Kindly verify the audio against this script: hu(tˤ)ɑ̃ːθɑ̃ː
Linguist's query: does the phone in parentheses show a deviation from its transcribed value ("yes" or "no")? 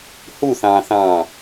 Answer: yes